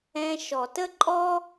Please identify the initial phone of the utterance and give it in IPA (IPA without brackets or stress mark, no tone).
ɛ̃